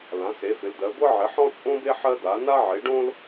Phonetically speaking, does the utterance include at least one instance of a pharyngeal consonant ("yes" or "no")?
yes